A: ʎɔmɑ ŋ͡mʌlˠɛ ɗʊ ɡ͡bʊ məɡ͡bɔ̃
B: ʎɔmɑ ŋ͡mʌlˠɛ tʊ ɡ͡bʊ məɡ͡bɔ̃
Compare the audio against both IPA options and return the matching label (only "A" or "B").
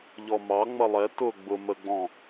B